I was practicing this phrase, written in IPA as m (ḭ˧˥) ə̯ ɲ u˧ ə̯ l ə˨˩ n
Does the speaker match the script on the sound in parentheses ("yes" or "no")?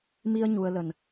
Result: no